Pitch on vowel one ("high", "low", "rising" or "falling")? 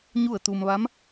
falling